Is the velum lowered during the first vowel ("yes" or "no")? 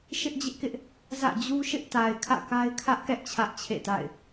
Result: no